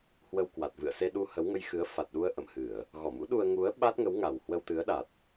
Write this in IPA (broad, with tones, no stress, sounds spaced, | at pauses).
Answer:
h w ə˧ w k w a˨˩ t̚ v ɨ̰˧˨ ə̯ s e˧ ɗ u˧ h ə˨˦ w ŋ ə˧ j x ɨ˨˦ ə̯ f a˨˩ t̚ ɗ u˧ ə̯ ʔ ə̰˧˨ m h ɨ˧˩˨ ə̯ | ɣ ɔ˧˩ m ṵ˧˥ ɗ u˧ ə̯ ŋ u˨˦ ə̯ ɓ a˦˥ t̚ ŋ ə˨˦ w ŋ a˨˩ w h w ə˧ w t̪ ɨ˨˦ ə̯ ɗ a˨˩ t̚